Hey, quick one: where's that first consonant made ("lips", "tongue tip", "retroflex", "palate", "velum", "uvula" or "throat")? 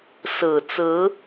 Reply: tongue tip